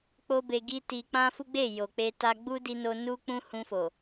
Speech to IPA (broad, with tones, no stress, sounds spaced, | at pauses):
k͡p o˦ b e˧ ɡ i˦ t i˧ k͡p ã˦ f u˦ ɡ͡b e˦˨ j o˨ k͡p e˧ t a˧ ɡ͡b u˦ d i˧ n o˧ n u˦ k͡p ũ˦ h ũ˧ f o˨